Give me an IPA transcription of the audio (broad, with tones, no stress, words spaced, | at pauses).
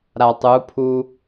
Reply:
ɾa˨tˤu˨˦pʰu˦